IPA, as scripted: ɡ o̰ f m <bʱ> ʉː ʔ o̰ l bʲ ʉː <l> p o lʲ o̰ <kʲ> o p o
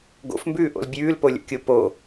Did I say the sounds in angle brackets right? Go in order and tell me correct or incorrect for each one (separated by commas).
incorrect, correct, correct